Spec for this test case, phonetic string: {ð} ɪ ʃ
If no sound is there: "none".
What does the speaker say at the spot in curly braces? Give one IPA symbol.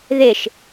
ð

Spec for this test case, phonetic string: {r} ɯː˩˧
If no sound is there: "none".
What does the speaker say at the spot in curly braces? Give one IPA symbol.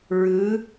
ɹ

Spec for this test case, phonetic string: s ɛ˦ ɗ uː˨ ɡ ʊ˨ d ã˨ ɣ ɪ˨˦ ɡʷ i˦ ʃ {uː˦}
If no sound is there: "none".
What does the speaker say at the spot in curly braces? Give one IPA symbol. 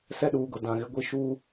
uː˦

